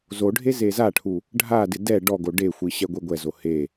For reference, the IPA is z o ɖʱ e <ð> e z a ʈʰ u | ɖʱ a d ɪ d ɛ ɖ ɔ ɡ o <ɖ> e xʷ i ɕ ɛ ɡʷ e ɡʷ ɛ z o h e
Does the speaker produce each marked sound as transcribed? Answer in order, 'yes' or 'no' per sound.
no, yes

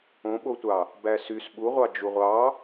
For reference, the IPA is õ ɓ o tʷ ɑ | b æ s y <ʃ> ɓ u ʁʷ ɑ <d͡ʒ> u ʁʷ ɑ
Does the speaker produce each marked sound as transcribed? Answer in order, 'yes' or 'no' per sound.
no, yes

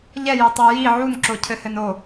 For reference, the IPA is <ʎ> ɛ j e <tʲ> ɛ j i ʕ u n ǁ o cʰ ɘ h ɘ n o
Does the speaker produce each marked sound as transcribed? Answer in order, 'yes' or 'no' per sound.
yes, no

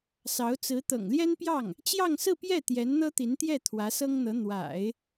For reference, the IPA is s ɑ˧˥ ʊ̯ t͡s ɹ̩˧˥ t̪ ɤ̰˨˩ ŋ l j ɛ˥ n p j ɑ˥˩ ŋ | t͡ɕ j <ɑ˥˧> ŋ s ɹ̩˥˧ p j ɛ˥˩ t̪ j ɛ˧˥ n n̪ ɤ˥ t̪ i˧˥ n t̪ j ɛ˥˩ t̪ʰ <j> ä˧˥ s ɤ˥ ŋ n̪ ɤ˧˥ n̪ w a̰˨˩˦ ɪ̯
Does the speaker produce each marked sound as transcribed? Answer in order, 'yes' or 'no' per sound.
yes, no

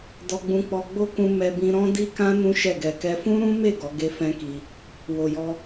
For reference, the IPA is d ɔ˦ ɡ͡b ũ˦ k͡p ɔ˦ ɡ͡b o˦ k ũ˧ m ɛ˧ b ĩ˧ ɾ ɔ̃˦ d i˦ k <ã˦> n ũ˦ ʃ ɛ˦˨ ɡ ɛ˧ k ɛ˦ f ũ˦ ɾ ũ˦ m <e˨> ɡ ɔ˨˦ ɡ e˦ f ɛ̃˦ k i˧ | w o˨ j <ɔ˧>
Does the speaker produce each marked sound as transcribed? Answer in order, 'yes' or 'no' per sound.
yes, no, yes

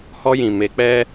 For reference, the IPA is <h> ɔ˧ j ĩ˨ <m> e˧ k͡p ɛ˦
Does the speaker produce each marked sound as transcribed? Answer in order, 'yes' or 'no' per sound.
yes, yes

